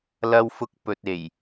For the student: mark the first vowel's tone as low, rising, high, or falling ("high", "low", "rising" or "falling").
high